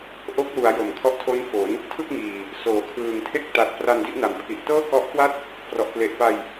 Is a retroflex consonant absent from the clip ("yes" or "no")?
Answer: yes